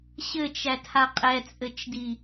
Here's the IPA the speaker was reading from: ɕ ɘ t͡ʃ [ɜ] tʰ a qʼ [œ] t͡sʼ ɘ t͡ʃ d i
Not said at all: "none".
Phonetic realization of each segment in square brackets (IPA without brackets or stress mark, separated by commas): æ, ɛ